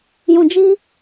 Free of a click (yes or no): yes